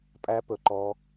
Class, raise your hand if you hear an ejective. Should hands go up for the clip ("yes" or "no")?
yes